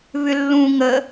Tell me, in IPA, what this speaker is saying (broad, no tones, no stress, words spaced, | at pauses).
βʏlːũ ŋə